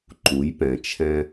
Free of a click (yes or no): no